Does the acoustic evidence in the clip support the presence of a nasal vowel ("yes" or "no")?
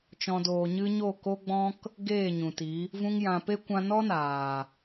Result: yes